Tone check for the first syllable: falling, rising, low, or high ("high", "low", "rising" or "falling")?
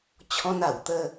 high